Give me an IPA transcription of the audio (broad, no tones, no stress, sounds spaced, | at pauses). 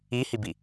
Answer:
i h i b i